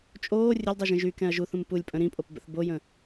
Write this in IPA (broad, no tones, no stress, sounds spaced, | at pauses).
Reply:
t͡ʃʼ oː rʲ ə lʲ dˤ y ʒ ə̃ ʒ y k ɛ̃ ɐ̯ ʒ u θ ũ m p u lʲ pʼ ə̃ ɾ ĩ pʼ o p b ə̰ θ b o j ə̃